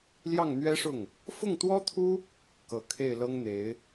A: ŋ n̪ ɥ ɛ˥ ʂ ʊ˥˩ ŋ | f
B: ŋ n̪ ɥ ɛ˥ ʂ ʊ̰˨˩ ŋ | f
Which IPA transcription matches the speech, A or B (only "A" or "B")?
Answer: A